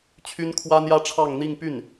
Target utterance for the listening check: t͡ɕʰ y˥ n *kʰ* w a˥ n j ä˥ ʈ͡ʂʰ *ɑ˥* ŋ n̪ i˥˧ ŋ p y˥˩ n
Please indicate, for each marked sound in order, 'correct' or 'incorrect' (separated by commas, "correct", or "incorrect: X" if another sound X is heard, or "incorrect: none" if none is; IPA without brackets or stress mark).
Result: correct, incorrect: ɑ˥˧